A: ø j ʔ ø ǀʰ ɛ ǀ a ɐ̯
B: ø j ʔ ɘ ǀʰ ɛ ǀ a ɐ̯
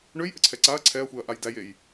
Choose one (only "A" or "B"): B